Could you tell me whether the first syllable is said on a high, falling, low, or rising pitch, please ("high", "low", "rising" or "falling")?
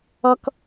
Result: high